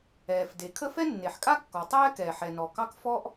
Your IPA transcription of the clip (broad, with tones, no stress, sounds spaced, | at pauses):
ɛː˩ f d e˩ kʰ ə˥ f ɛ˥ nː e˩ ħ kʼ a˥ kː ɔ˩ tˤ ɛː˥ k ɛː˩ ħ ɛ˩ n ɔ˩ k ɑ˥ k f ɔ˥ ʔ